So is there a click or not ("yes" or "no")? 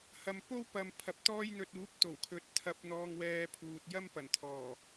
no